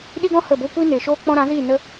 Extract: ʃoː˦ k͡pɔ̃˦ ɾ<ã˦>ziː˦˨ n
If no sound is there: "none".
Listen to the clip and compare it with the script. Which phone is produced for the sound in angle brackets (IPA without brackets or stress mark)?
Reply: ã˨˦